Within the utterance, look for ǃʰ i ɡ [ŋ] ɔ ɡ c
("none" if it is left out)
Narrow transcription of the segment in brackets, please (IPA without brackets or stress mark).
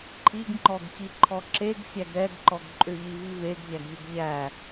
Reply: ŋ͡ǃ